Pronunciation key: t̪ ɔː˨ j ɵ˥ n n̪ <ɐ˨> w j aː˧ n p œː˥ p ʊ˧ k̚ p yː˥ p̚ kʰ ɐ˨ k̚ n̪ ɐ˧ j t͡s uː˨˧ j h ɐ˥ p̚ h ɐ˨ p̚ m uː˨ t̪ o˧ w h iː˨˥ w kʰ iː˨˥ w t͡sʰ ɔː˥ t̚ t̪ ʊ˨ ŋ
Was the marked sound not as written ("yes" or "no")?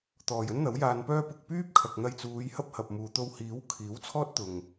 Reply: yes